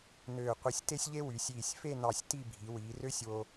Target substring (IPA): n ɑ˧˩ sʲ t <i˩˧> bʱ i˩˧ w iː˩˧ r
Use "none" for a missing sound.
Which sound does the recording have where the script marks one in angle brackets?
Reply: i˥˧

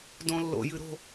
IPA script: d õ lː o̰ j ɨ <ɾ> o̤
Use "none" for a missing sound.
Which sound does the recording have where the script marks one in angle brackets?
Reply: ɾ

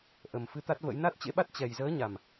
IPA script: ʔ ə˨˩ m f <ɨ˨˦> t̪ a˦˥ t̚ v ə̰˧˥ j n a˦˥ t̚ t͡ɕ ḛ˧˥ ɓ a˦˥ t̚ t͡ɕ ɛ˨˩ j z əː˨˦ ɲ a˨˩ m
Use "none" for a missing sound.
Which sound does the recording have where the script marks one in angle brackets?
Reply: ɨ˧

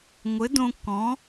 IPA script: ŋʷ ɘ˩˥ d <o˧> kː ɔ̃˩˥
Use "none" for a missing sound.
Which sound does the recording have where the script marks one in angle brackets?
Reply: õ˧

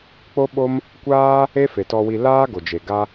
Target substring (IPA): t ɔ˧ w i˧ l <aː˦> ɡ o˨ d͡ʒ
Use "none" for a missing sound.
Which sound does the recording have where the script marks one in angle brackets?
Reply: aː˦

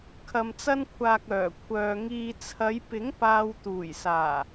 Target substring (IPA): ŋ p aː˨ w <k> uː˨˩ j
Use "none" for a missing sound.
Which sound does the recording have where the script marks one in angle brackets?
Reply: t̪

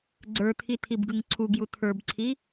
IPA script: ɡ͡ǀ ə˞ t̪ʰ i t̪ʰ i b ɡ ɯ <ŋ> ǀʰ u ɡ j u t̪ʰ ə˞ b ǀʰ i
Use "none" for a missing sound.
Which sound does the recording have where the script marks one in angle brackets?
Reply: ŋ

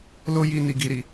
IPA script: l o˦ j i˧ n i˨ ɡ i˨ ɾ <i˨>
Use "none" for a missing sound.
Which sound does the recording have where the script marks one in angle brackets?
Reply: i˨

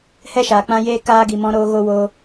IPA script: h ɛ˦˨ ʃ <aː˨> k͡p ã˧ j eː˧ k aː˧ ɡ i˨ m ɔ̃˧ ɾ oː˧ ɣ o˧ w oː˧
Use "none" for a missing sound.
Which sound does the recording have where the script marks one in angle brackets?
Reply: aː˨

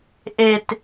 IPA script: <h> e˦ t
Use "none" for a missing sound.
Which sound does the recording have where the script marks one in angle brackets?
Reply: ʔ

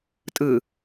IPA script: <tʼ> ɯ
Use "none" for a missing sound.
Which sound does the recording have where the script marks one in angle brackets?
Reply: tʼ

